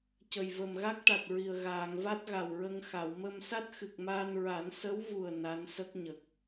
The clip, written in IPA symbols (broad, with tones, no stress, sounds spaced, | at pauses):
c ə˨˩ j v ə˨˩ m ɣ a˦˥ k̚ ʈ a˨˩ t̚ ɹ i˨˩ ə̯ ɣ aː˨˩˨ ŋ v a˦˥ t̚ ɣ a˨˩ w ɹ ə˧ ŋ x a˨˩˨ w m ə˧ m s a˦˥ t̚ x ɨ˨˩ k̚ m aː˧ n ɹ a˨˩˦ n s ə˧˥ w v u˨˩ ə̯ n a˧˥ n s ə˦˥ k̚ ɲ ə˨˩ k̚